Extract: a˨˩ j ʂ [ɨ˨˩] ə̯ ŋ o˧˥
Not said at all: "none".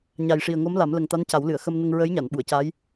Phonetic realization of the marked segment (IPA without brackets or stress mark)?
i˨˩